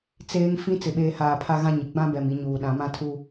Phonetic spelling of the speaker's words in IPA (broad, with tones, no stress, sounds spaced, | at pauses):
t͡s eː˦ ŋ f ĩ˦ t͡s ɪ˨ ɓ eː˨ h aː˨ pʰ a˦ ɣ ã˦ ɲ ɪ˨ ɡ͡b ã˦ b ɛ˨ m i˨ ɲ uː˨ ɗ ã˨˦ m ã˦ tʰ u˦